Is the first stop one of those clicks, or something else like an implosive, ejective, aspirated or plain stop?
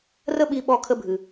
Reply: implosive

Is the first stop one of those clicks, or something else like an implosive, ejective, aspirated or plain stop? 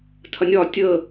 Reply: aspirated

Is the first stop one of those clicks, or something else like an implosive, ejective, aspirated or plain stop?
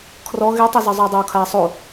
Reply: aspirated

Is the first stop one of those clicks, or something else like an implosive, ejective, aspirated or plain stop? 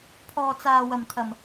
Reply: aspirated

